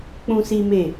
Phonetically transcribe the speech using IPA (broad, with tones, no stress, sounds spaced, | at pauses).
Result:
k͡p ũ˦ s i˦ m e˦˨